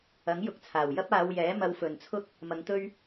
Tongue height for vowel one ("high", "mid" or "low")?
low